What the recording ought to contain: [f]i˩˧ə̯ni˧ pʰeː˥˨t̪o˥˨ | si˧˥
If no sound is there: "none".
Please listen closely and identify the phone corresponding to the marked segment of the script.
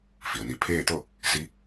f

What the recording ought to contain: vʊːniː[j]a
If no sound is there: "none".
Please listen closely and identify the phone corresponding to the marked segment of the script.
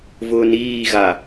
ɣ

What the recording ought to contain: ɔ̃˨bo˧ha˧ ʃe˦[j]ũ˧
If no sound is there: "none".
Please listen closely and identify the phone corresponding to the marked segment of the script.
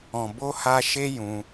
j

